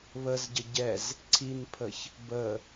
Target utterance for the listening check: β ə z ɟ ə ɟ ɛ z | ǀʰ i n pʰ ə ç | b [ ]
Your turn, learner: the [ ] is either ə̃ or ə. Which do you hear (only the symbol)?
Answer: ə